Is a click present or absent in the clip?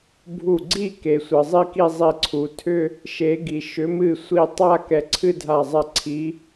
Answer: present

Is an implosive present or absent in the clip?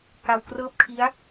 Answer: absent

